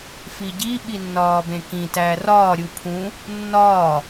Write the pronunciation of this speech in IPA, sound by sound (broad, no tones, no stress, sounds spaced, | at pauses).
f i ɟ i ɓ i nː ɒː b ẽ k ĩ t æ r ɒː ɾʲ u pʰ ũ | nː ɒː